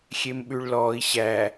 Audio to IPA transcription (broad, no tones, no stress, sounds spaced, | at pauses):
xʲ e m ɓ ʉ ɭ l ɔː i̯ ɕ æ